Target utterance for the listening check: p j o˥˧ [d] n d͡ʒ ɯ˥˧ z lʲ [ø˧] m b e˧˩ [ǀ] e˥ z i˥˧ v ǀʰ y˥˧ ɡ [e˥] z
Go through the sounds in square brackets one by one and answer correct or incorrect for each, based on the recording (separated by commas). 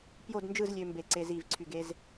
correct, correct, correct, correct